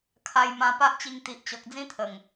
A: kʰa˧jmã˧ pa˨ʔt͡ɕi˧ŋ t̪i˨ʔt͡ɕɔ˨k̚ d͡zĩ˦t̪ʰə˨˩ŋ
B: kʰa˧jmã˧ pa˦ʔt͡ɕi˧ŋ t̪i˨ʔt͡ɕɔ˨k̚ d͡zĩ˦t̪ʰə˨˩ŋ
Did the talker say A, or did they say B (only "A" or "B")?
B